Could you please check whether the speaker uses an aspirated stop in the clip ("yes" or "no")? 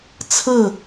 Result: yes